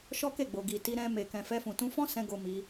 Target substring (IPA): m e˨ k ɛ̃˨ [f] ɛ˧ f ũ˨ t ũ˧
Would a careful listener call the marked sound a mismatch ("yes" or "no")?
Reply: no